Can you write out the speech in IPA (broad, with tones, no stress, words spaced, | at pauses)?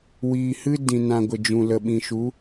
wiː˨hɨ˦dĩ˨ nã˨ɡʷə˨d͡ʒũ˨ lə˨ɓĩ˨ʃu˨˦